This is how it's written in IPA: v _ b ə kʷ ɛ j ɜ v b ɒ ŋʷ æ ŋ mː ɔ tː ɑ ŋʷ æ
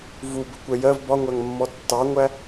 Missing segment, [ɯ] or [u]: u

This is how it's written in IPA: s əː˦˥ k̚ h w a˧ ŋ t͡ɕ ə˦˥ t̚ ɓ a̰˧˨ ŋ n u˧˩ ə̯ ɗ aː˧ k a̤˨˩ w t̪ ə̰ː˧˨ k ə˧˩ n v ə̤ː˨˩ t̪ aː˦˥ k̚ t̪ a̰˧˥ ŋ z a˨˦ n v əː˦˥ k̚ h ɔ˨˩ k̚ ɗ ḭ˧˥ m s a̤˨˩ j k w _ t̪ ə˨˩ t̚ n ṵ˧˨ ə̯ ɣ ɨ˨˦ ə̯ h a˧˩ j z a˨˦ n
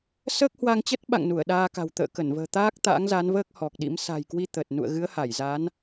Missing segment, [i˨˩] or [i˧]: i˧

